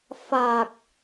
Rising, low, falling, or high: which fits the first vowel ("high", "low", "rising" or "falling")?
low